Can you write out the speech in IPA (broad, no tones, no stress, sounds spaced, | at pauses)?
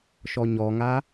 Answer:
ʃ ɔ ɲ ɔ ŋ a